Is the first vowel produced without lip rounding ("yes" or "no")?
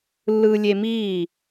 yes